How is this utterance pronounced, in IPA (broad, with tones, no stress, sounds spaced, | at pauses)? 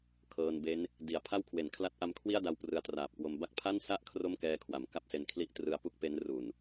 kʰ ɤː˧ n b e˦˥ n | d i˨˩ a̯ pʰ a˥˩ w kʰ w e˩˦ n kʰ l a˦˥ t̚ ʔ a˦˥ m kʰ w i˥˩ a̯ d a˦˥ w p r ɯ˧ a̯ t r aː˨˩ p̚ k w o˧ m b a˦˥ k̚ pʰ a˥˩ n s a˥˩ ʔ kʰ r o˥˩ m k ɛː˧ kʰ w a˩˦ m k a˥˩ p̚ s e˧ n kʰ l i˥˩ ʔ t r ɯ˦˥ a̯ p u˥˩ k̚ p e˦˥ n r u˨˩ n